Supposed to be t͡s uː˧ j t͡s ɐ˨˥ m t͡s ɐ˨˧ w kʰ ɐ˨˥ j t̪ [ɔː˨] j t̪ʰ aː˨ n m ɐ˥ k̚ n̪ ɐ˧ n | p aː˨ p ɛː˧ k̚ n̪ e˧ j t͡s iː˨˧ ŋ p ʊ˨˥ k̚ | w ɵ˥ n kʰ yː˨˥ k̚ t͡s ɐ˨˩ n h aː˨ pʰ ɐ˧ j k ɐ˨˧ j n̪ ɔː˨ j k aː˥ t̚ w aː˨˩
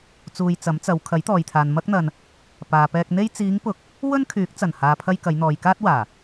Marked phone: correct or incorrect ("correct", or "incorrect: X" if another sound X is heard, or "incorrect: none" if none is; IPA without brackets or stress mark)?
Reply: correct